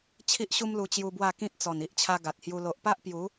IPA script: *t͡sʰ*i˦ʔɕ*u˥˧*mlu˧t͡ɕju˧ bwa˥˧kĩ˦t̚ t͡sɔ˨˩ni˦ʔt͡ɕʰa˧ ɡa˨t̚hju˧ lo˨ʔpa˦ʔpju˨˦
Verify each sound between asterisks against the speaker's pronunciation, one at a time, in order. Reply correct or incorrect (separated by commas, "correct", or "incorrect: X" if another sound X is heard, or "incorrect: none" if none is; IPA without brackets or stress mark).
incorrect: t͡ɕʰ, incorrect: u˦